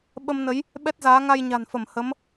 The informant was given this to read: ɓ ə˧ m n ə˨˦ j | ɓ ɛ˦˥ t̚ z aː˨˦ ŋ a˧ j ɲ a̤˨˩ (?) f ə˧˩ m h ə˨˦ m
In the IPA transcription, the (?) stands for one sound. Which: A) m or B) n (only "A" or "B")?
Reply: B